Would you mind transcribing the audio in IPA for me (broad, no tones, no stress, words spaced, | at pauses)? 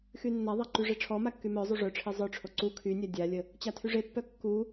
xynːaðˤa ǃyʐeʈ͡ʂʰɔma kːymœzˤu ʐœʈ͡ʂʰe zˤœʈ͡ʂʰo ǀu kʰynʲa dʲalʲə | t͡ɕatʰyʐepːœ kːu